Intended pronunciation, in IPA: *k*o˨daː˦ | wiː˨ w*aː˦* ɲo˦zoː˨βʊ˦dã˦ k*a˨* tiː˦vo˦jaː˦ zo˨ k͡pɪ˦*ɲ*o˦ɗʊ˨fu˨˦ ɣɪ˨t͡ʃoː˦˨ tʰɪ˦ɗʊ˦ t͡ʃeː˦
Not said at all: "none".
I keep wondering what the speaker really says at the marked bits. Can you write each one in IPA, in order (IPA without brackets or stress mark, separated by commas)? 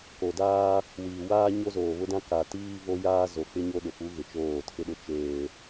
k, aː˦, a˨, ɲ